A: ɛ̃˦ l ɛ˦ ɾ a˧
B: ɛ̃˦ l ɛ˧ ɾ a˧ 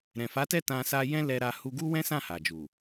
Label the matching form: B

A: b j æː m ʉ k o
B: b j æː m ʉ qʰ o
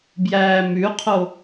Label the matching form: B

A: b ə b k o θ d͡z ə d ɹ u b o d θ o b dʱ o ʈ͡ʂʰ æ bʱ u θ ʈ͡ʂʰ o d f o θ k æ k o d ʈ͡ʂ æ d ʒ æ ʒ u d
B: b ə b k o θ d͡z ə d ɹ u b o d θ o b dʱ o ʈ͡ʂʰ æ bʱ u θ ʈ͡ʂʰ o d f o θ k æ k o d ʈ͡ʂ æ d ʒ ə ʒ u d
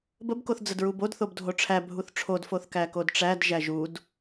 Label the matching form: A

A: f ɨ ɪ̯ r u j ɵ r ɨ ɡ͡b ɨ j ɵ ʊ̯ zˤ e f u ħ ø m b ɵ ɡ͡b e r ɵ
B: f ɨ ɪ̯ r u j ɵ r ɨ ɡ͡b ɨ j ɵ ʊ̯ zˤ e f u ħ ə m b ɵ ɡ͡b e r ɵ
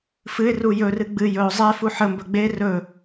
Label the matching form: B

